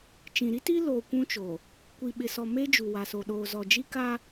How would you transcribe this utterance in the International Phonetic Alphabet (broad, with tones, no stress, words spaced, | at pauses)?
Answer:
t͡ʃĩ˨ɾi˦ti˦ loː˨ kʷũ˦t͡ʃo˨ | kʷi˨ɓɪ˨sɔ˨ me˦ d͡ʒu˨wa˨so˨ ɗoː˨ zɔ˨d͡ʒi˦ ka˦